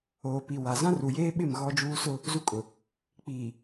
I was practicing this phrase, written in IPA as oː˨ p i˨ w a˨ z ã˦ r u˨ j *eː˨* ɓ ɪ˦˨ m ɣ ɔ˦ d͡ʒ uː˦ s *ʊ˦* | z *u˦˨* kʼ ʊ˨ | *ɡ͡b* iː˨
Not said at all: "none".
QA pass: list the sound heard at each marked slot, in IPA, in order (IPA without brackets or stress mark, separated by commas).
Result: eː˦, ʊ˦, u˦, k͡p